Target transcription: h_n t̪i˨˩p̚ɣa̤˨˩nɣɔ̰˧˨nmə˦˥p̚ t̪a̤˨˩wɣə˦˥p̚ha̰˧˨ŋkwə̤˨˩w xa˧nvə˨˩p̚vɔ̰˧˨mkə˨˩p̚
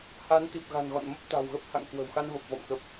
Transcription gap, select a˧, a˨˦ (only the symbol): a˨˦